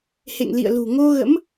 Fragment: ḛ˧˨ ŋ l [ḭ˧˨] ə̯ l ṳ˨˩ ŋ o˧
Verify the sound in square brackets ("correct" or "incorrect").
correct